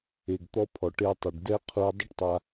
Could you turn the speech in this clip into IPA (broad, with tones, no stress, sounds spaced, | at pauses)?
e˩ ɡ t̪ ɔ˧ pʰ ɔ˩ ʈ e˧ tˤ u˩ ɖ d ɛ˥ qʰ u˧ dˤ ə˥ ʈ tˤ a˧